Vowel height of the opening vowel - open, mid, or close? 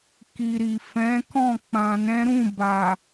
close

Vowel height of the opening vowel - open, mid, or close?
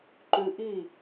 close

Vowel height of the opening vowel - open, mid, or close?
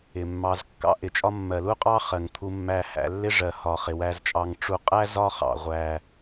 close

